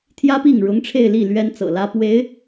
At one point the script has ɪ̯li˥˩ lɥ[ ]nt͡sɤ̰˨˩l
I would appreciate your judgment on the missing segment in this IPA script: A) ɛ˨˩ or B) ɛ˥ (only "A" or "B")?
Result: B